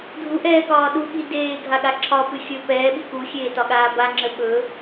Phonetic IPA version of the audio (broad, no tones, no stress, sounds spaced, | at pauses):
dʱ u ʔ ɛː k ɒː ɗ u ɠ i d eː ɡʱ a ɠ a ǁʰ ɒ p ɨ xʲ ɵ p ɛː ɓ i k u xʲ eː t ɒ ɠ aː b a ŋ͡ǁ ə ɓ ɵ